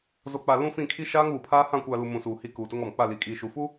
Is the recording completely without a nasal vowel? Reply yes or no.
no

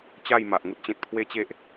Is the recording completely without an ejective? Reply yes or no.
yes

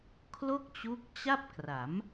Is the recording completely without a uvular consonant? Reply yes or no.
yes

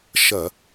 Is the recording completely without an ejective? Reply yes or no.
yes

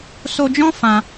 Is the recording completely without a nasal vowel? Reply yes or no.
no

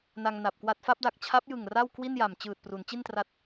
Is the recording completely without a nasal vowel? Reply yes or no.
yes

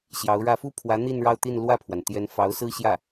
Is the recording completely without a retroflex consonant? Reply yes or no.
no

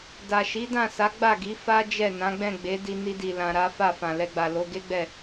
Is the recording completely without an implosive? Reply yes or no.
yes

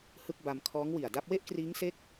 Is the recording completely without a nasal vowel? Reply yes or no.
yes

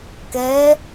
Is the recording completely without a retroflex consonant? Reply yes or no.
yes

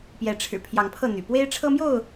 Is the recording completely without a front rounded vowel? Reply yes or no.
no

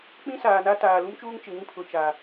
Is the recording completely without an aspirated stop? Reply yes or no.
no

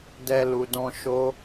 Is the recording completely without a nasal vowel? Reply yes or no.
no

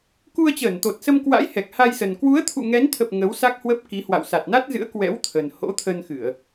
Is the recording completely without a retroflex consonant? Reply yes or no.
yes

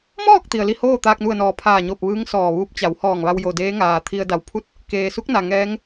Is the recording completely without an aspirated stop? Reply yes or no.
no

